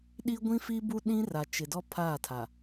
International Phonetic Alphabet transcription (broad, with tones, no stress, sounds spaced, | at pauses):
ɗ i˦ ɡʷ ĩ˦ f i˦ b u˦ ɗ ĩ˦ r a˨ t͡ʃ ɪ˨ d ɔ˦ pʰ aː˦˨ tʰ a˨